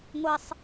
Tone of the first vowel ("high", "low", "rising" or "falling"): high